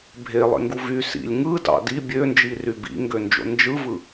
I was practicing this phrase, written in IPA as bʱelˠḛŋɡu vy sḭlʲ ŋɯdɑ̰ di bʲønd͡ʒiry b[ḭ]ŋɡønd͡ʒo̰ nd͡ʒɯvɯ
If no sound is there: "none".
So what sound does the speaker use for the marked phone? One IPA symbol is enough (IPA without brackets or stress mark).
ḭ